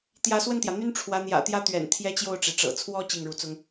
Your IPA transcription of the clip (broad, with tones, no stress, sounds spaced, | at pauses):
t̪ j ä˧˥ s w ə˥˩ n t̪ j ä˩ n̪ y˥ n ʈ͡ʂʰ w ä˧˥ n̪ j ä̰˨˩ t̪ j ä˥ t̪ ɥ ɛ̰˨˩ n t̪ʰ j ɛ˥ t͡ɕ j o˥˩ ʊ̯ ʈ͡ʂ e˩ ɪ̯ ʈ͡ʂ ɤ̰˨˩ t͡sʰ w ɔ˥ t͡ɕ i˥˩ ŋ ɻ u˧˥ t͡s ʊ˥ ŋ